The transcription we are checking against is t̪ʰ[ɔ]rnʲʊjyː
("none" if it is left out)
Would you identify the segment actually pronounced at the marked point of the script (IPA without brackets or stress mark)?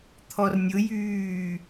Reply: ɔ